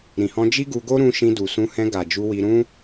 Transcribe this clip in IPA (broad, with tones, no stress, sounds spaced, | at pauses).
ɾ ĩ˨ h ɔ̃˧ d͡ʒ i˦ ɡ u˧ ɡ o˦ ɾ ũ˧ ʃ ĩ˧ d u˨ s ũ˧ h ɛ̃˧ ɡ a˨ d͡ʒ u˧ w i˧ ɾ ũ˦